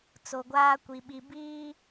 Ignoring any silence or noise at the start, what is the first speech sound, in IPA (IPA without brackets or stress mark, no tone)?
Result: t͡s